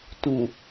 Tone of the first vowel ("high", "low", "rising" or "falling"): low